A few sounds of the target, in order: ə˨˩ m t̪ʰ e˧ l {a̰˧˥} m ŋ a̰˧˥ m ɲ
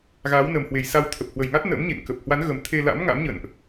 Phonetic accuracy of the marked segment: correct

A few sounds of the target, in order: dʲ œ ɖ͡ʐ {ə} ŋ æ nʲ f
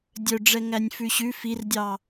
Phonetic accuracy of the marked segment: incorrect: ɛ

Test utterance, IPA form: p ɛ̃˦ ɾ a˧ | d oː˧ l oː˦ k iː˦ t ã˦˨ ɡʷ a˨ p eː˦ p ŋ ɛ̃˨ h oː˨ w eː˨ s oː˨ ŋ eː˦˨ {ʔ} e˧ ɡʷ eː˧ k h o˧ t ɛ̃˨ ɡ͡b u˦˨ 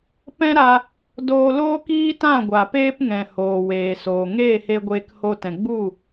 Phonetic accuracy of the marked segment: incorrect: h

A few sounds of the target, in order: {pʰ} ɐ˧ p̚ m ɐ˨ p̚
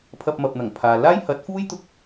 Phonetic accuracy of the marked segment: correct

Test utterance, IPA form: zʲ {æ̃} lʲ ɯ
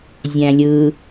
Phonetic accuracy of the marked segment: correct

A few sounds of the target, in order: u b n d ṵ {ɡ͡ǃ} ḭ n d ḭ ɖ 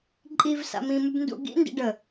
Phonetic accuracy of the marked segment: incorrect: ɡ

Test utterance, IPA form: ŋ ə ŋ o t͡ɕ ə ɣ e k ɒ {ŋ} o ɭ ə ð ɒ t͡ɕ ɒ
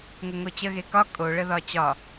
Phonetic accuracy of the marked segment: incorrect: kʼ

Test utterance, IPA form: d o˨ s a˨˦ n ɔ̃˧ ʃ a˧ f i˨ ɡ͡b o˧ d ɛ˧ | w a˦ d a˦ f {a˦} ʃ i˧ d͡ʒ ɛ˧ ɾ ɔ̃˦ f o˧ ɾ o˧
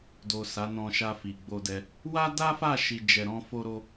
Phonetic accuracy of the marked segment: incorrect: a˦˨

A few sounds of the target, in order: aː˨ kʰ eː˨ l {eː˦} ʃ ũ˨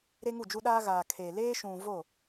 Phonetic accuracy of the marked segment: correct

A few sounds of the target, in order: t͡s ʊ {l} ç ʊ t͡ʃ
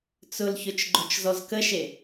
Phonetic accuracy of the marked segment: correct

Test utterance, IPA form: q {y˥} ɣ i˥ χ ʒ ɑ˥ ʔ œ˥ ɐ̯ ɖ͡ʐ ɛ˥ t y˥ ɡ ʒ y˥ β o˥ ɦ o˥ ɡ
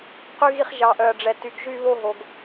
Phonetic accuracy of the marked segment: correct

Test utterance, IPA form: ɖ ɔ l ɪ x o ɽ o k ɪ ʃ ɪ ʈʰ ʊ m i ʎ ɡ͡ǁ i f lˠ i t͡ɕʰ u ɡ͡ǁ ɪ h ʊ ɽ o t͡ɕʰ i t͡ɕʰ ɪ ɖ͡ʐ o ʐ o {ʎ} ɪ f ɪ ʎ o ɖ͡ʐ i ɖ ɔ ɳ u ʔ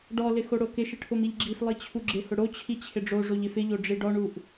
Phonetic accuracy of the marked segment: correct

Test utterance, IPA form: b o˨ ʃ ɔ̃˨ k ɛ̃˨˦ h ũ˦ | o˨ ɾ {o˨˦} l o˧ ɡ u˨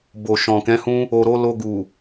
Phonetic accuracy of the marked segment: correct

